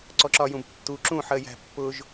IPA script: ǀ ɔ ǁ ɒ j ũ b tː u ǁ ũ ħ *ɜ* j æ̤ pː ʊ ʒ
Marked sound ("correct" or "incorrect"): correct